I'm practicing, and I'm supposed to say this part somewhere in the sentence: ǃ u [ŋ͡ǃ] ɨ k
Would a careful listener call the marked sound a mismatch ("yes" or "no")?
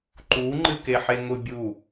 no